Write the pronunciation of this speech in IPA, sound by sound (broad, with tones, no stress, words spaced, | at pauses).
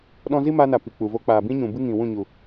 ɗɔ̃˦ zi˦ma˧na˨ pi˨k͡pu˨ vo˧k͡paː˨bĩ˦ɲũ˨ bɨ˦ŋĩ˨wũ˦˨ ɲu˨